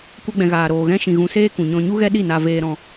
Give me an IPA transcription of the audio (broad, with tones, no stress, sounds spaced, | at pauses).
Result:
kʷ ɛ˦ ɡ͡b ɛ̃˧ ɣ aː˧ ɾ oː˧ ɣ ɛ̃˦ ʃ ĩ˧ ɣ ũ˧ s eː˦ k ũ˨ ɲ ɔ̃˧ ɲ u˦ ɣ ɛ˦ ɗ i˦˨ n a˧ v eː˧ ɾ ɔ̃˧